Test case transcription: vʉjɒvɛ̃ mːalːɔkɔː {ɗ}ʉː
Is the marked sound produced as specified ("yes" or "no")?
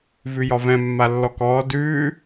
no